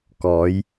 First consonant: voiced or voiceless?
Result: voiceless